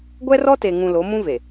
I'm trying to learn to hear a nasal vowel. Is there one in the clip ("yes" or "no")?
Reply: yes